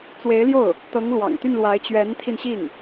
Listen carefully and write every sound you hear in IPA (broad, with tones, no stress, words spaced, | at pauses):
t͡swe˧˥ɪ̯ljo˥˩ʊ̯ | t̪ɤ˧˥ŋlwɑ̰˨˩ŋt̪y˥˩nlwa˧˥ɪ̯ t͡ɕɥɛ˧˥nt̪ʰi˧nɕi˥˩ŋ